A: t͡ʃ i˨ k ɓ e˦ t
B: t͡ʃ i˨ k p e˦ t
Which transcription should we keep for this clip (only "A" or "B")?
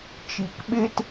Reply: A